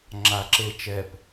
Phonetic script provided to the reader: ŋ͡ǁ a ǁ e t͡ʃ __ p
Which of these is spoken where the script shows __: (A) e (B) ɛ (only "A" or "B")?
B